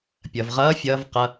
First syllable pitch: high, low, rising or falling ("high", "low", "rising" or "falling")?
low